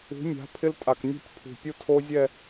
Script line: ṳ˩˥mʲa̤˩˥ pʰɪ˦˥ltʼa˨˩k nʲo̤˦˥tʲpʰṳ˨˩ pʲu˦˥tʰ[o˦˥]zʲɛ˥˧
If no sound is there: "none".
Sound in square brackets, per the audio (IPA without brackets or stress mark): o˦˥